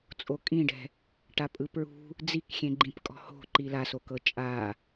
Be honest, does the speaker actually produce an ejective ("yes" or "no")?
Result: yes